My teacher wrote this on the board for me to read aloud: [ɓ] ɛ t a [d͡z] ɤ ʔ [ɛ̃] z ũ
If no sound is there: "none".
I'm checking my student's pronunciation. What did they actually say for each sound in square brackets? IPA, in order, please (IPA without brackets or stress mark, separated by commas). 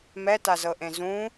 m, z, ẽ